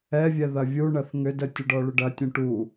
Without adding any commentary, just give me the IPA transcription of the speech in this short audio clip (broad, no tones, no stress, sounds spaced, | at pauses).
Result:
ɛ vʲ ɛ ð ɐ vʲ u ɳ ɐ θ ŋ ʏ d ə tʲ ʊ ɖ ɔ ɭ ʏ ɖ ɐ tʲ ũ ʈ u